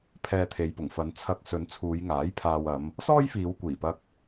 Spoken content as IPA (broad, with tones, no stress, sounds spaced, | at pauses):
pʰ ɛː˧ t̪ʰ e˨˧ j p ʊ˨˩ ŋ f ɐ˨˧ n t͡sʰ ɐ˧ k̚ s ɵ˨˧ n t͡sʰ uː˨˧ j ŋ aː˨˥ j pʰ aː˨ w ɐ˨˧ m | s ɔː˥ j f iː˨˧ w kʷ iː˨˩ p ɐ˧ k̚